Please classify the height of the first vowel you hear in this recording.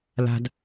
low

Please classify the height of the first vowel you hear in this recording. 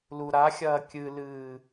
high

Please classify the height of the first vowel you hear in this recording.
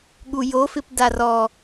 high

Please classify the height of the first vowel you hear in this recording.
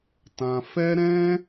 low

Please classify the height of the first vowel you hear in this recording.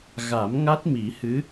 low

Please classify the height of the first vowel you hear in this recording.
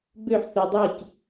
mid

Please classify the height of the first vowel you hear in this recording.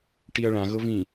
high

